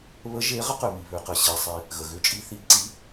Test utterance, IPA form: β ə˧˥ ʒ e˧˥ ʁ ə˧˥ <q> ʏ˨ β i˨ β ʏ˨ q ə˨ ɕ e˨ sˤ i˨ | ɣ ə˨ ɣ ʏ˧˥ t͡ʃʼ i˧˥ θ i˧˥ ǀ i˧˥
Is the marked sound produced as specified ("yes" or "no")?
yes